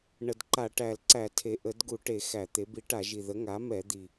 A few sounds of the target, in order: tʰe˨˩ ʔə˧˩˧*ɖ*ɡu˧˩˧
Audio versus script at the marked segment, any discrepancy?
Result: yes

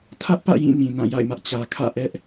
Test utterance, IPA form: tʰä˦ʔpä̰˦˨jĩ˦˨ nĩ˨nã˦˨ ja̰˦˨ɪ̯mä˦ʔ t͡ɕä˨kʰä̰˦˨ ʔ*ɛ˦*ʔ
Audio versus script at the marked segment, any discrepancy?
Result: no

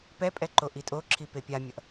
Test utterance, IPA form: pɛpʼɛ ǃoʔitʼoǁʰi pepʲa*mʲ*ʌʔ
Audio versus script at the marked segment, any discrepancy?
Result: no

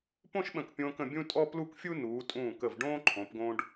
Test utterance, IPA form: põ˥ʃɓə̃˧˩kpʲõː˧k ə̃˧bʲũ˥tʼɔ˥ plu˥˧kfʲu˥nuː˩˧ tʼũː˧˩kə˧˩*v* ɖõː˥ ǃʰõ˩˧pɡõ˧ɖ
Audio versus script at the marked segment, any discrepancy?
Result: no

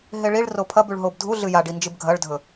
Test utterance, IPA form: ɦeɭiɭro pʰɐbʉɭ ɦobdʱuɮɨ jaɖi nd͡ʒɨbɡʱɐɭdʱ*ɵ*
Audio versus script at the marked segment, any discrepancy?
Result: no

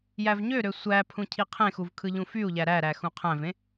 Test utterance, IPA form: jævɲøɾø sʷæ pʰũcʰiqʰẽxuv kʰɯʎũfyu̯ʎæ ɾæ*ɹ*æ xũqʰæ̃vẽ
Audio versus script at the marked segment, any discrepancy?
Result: yes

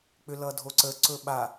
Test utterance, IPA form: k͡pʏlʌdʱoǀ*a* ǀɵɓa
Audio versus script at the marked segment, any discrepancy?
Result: yes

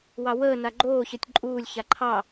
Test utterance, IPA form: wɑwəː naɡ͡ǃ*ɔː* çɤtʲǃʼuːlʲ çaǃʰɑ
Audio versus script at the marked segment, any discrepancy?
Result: yes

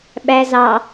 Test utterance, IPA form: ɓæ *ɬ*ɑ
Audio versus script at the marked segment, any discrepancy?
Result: yes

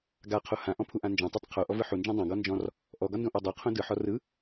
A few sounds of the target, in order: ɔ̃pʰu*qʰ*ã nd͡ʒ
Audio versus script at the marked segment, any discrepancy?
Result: yes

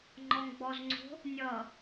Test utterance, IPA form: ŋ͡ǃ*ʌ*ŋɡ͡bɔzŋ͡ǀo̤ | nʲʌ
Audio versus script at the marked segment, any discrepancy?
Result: yes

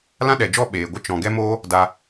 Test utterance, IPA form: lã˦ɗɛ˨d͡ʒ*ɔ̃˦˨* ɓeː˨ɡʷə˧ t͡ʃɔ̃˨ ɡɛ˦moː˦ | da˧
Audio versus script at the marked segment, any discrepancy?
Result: yes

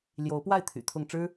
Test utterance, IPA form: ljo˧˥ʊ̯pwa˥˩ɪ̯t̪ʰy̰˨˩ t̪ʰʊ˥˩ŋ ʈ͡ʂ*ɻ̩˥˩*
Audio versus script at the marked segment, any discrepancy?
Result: yes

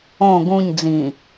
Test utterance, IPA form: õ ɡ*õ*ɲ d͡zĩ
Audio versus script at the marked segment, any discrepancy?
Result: yes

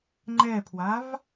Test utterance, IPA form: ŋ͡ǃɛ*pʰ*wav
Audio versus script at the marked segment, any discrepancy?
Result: no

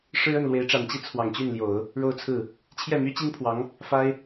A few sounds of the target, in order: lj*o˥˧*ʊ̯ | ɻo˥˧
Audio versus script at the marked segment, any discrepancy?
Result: yes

